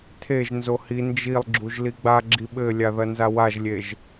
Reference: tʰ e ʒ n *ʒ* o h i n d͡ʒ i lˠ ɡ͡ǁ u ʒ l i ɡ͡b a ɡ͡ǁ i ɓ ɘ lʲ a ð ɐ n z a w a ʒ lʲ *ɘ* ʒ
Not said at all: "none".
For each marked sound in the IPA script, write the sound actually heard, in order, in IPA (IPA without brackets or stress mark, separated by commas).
z, e